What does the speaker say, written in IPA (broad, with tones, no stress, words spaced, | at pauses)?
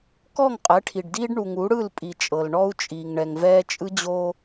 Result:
kɔ˦˨ŋqʼɛ˨˦ʈʰi˨ɖdiː˦ɖ ɳu˨ŋu˨˦ɽɯ˦˨lpʼi˨ t͡ʃʼɤ˨lɳɔ˦u̯t͡ʃʼiː˨ŋ ɳɛ˨ŋvɛː˦ t͡ʃʼɯ˦d͡ʑo˦